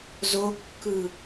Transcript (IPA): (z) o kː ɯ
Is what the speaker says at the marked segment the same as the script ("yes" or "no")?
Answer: yes